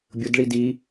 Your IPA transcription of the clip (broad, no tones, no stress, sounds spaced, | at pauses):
bʲ ʊ d ɭ i d i